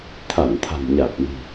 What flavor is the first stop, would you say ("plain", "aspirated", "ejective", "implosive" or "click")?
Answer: aspirated